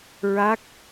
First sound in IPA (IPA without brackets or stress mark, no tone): ɹ